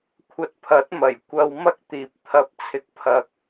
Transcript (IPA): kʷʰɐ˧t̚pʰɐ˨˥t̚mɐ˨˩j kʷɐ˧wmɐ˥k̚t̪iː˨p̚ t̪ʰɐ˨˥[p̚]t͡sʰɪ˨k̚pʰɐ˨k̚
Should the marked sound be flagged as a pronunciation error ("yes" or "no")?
no